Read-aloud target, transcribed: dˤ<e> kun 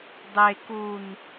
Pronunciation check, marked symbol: correct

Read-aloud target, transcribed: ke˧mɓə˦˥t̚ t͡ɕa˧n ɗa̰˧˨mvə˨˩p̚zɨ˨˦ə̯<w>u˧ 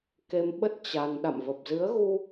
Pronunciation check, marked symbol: incorrect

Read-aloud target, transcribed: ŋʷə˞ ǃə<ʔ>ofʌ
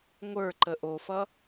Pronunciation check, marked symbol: correct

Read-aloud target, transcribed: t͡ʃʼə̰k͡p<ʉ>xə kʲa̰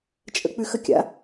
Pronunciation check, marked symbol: correct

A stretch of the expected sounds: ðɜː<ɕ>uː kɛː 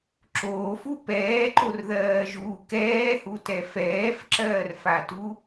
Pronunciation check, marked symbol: incorrect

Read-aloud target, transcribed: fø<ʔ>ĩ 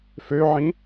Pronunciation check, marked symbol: incorrect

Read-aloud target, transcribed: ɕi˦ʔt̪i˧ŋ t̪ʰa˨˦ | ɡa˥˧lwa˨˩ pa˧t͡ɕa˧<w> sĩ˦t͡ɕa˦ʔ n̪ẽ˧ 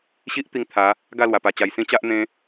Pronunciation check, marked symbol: incorrect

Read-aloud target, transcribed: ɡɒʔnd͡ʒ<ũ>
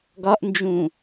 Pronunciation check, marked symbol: correct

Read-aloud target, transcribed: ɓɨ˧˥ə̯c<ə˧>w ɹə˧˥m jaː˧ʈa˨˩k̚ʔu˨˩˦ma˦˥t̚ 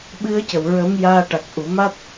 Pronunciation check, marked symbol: incorrect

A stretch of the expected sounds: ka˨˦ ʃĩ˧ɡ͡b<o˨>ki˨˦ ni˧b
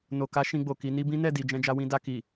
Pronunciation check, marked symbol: correct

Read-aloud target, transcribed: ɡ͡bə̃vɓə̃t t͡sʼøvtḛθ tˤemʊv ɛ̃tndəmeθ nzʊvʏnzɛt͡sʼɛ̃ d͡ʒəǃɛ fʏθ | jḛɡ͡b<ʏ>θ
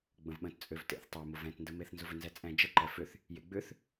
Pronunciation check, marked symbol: correct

